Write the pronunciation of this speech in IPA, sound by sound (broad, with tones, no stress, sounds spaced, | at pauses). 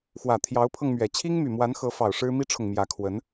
x w ä˨˩ t̪ʰ j ɑ˧˥ ʊ̯ pʰ ɤ˧ ŋ m ɥ ɛ˨˩ t͡ɕʰ i˥ ŋ m y˨˩ m w a˧˥ n x ɤ˧˥ f ɑ˨˩ ʊ̯ ʂ ɻ̩˥ m i˥ ʈ͡ʂʰ ʊ˨ ŋ m j ä˧˥ kʰ w ə˧˥ n